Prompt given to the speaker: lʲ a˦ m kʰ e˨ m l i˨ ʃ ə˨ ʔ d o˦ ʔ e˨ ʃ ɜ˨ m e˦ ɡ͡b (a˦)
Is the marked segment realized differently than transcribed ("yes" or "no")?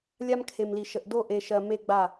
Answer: yes